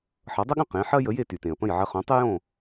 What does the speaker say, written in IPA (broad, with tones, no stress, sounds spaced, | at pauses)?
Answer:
ħ ʌ˩˥ dˤ ə˥ ɠ ə̃˥˩ q ẽ˩˥ ħ ɐ˥ j ə˩˥ j e˥˩ t y˩ t ẽ˩ ə̯ p ə̃˥˩ j ʕ ɐ˧ χ õ˩˥ tˤ ɪ˥ j õ˥˩